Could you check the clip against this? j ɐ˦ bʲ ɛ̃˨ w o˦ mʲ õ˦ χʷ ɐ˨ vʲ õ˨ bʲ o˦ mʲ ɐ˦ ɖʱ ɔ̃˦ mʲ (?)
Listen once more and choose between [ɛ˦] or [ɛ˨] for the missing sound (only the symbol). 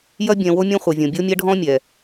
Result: ɛ˨